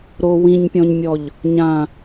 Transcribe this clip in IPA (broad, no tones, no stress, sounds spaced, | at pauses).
ɾ o w ĩ ɲ pʲ ɔ̃ ɲ mʲ ɔ ʎ | ɲ ã